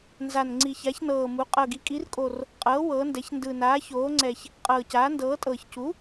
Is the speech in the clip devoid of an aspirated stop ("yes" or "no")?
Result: yes